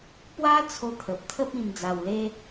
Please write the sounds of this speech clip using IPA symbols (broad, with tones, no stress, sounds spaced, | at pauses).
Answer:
p w a˦ t͡sʰ o˧ t̪ʰ ə˨ p̚ t̪ʰ ə˦ p̚ ĩ˧ m d͡z a˧ w l e˦